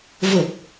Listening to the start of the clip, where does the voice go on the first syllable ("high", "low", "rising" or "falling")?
low